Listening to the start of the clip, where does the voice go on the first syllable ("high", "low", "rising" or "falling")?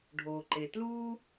low